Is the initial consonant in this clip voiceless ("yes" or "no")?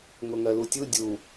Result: no